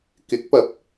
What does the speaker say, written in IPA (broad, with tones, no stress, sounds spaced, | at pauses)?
k ɪ˨˥ k̚ p ɐ˨ p̚